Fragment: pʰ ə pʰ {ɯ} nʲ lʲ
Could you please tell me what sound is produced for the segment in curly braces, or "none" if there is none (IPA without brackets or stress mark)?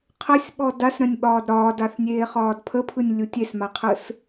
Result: ɯ